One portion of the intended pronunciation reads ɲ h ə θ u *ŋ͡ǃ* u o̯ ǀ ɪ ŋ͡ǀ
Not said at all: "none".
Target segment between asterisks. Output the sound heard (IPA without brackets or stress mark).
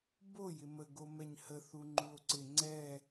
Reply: ŋ͡ǃ